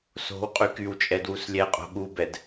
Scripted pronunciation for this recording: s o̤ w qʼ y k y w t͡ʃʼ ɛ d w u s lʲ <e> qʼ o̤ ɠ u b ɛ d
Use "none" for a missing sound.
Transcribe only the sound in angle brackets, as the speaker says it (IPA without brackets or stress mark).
ɛ